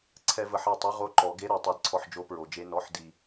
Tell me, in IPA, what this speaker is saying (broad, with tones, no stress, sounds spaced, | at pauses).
ǀʰ ɛ˧ v ə˩˧ ħ ɛ˨˩ tˤ ʊ˧˥˧ ʁ o˧˥˧ ǃ ɔ˩˧ ɡ e˧˥˧ ɾ ɛ˩˧ tˤ i˩˧ d ǀʰ ɔ˧ ħ d͡ʒ o˧˥˧ p ɹ o˩˧ d͡ʒ e˧˥˧ n ɔ˧˥˧ ħ d i˨˩